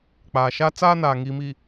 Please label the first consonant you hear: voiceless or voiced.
voiceless